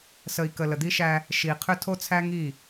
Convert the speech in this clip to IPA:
s ə˨ i̯ k ə˨ l ə˨ d̪ i˦ ʃ æ˦ | ʃ i˨ qʰ ʏ˦ tʰ o˦ t͡sʰ æ˦ ŋ i˦˨

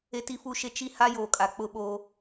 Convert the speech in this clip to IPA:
e˦ t i˦ f u˦ ʃ e˦ t͡ʃ i˦ h a˦ j oː˨ kʼ a˨ k͡p ʊ˦ ɓ oː˦

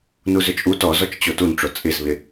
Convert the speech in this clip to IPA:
n u z ʏ t͡ʃʼ u t ɔ z ɔ t͡ʃ t͡ɕ o t u n ʈ͡ʂ o t͡sʼ ɪ z β ɪ

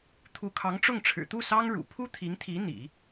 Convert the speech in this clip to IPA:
t̪ʰ u˧˥ kʰ ɑ˧˥ ŋ ʈ͡ʂ ʊ˥˩ ŋ ʈ͡ʂʰ ɻ̩˨˩ t̪ u˥˩ s ɑ˥ ŋ ɻ ṵ˨˩ pʰ u˥ t̪ʰ i˧˥ ŋ t̪ʰ i˧˥ n̪ ḭ˨˩˦

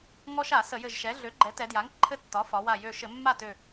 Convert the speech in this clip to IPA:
ŋ ɔ˦ ʃ a˧˩˧ s ə˧˩˧ j ɘ˧˩ ʒ ʃ ɛ˩˥ ɮ ø˩˥ ɡ͡ǃ ɛ˩˥ t ɛ˩˧ d j a˩˥ ŋ ǃʰ ɘ˦ tː ɒ˩˥ f ɒ˩˧ w a˧˩ j ø˧˩ ʃ ɘ˧˩˧ mː a˥˩ t ø˧˩

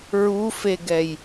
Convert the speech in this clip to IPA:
ɹ u f e ɡ ɛ j

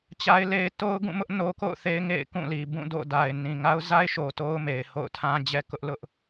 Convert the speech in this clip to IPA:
t͡ɕ a˦ ɪ̯ l e˦ ɪ̯ t o˦ ʊ̯ ɡ ũ˦˨ m ʊ˦ ʔ n o˦ k o̰˦˨ ʊ̯ θ e˦ ɪ̯ ŋ ḛ˦˨ ɪ̯ k ũ˦˨ l i˨ b ũ˦˨ d o̰˦˨ d a˨ ɪ̯ n ĩ˨ ŋ a˦ ʊ̯ z a˦ ɪ̯ ʃ o˨ t o˦ ʊ̯ m e˨ ɪ̯ h o̰˦˨ ʊ̯ tʰ ã˦ d͡ʑ ɛ˦ k ʊ˦ ʔ l ʊ˦ ʔ

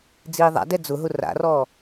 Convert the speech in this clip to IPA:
d͡z iː ðˤ a̰ d ɛ d͡z ʊ ɦ ʊ r a̰ r ɔː

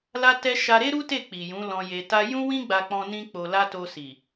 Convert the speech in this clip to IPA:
l a˦ t ɛ˦ ʃ a˧ ɾ e˦ ɾ u˦ t e˦˨ k͡p i˨ j ũ˨˦ l ɔ̃˧ j e˧ t a˦ j ũ˦ w ĩ˦ ɡ͡b a˧ k͡p ɔ̃˧ n ĩ˦ k͡p o˧ l a˦ t o˧ s i˨

